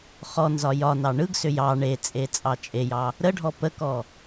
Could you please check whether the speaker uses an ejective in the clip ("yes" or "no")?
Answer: yes